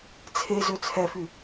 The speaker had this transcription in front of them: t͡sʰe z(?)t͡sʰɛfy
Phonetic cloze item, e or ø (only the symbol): ø